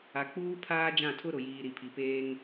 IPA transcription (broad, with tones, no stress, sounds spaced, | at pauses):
a˨ k͡p uː˦ pʰ aː˦ d͡ʒ ã˦˨ tʰ ʊ˦ ɾ ʊ˨ j iː˨ ɾ i˨ pʰ i˨ p eː˦ ŋ